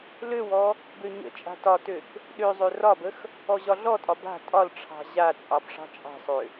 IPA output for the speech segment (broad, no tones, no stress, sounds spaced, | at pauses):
l ø w ɔ | b ø ɲ ə̰ t͡ʃʼ a̤ t ɒ t ø k | ɗ ø zˤ ø r ɒ b ə x | ɔ ʑ ɒ ɮ ɔ tʼ ɒ b a̤ tʼ ɒ l ʈ͡ʂʰ ɑ̤ ʑ a t͡sʼ ɑ b ʂ ɑ̤ t͡ʃʼ ɑ̤ sˤ ø